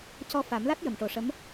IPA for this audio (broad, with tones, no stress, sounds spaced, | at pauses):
c ɔ˧ f a˨˩˦ m l a˦˥ t̚ j ə˨˩˨ m ʈ o˨˩ ʂ ə˧˥ m